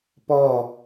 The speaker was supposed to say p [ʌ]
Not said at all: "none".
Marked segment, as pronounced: ɔ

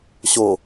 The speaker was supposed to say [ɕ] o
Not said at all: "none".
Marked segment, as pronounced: ɕ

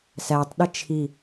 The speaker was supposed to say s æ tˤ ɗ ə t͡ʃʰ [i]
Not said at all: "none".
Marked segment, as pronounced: i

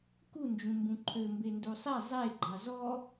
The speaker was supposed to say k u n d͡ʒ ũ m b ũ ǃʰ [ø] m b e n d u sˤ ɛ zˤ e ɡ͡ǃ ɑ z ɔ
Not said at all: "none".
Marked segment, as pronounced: ø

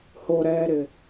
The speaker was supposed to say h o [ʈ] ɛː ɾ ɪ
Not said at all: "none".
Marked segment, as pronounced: ɾ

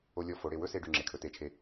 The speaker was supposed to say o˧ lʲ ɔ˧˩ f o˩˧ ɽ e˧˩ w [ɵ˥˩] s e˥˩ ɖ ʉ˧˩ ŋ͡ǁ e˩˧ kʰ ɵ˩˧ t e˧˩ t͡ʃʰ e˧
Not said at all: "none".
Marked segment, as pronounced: ɵ˥˩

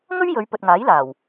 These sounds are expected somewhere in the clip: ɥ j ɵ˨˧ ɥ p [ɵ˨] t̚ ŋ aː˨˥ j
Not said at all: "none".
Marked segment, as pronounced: ɵ˨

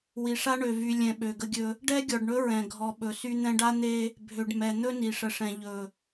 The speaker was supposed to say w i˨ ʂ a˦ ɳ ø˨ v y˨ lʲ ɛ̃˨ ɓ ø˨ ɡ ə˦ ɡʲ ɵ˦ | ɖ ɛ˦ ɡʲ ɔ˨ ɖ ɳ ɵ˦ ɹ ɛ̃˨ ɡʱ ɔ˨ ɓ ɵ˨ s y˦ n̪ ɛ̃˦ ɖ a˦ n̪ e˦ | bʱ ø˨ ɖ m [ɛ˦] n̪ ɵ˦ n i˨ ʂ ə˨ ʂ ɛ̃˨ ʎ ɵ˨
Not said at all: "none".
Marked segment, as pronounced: ɛ˨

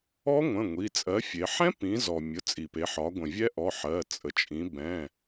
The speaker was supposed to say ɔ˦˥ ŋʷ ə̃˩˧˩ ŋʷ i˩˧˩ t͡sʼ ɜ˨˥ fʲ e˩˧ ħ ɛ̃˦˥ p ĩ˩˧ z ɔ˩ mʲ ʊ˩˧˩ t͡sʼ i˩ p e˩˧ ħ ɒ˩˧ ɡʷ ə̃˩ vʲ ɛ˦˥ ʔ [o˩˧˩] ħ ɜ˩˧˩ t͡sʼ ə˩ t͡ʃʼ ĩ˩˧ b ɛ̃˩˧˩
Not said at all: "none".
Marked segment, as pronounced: ɔ˩˧˩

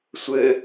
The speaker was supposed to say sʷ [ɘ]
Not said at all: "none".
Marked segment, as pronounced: ɘ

